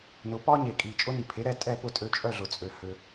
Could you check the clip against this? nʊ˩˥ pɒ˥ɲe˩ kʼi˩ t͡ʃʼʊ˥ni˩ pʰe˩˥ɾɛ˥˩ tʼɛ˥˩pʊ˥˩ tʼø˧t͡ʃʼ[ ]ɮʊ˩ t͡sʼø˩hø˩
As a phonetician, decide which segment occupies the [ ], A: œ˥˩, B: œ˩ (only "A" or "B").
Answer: A